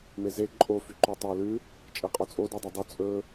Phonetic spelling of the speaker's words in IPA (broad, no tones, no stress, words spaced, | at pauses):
meze ǃʼo fyǃøtˤœ lʉ | t͡ʃʼɛqʼɔt͡sʼo dudˤɵdˤʉ t͡sʼɵ